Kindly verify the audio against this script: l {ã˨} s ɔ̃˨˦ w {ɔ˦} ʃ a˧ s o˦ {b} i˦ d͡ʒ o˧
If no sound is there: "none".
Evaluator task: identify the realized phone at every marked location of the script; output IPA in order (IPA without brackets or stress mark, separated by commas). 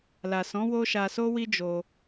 a˨, o˦, w